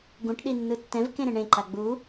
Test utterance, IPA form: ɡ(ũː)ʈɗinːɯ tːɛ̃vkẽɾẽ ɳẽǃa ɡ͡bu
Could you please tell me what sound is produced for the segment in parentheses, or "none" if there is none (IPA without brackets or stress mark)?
ũ